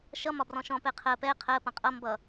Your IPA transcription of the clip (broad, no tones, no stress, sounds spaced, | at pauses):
ʃ ʌ m ɒ b r ɔ̃ ʃ ɔ̃ p ɛ qʰ ɜ p ɛ qʰ ɜ p ɐ̃ qʼ ʌ m b ʌ